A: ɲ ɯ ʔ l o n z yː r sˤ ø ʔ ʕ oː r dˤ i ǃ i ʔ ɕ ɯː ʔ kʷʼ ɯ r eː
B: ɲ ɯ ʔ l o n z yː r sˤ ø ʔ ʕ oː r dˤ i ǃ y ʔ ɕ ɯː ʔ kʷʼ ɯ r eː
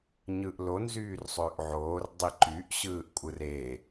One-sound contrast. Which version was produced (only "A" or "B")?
B